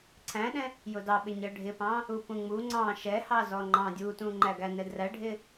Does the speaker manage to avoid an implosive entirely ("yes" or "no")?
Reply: no